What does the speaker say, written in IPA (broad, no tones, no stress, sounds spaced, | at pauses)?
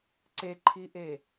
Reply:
ǀ e ǃʰ i ʔ e